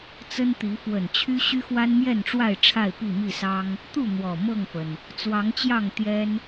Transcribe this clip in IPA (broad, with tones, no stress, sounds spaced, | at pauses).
t͡s ə˦ n t̪ i˨˦ f w ə˨˩ n t͡ɕʰ y˦ ɕ y˦ x w a˦ n m j ɛ˥˨ n ʈ͡ʂ w a˥˨ ɪ̯ ʈ͡ʂʰ a˥˨ ɪ̯ p i˥˨ m i˥˨ s ɑ˦ ŋ | t̪ u˥˨ n̪ w ɔ˨˩ m ɤ˥˨ ŋ f ə˩ n | t͡s w ɑ˨˦ ŋ t͡ɕ j ɑ˥˨ ŋ t̪ j ɛ˦ n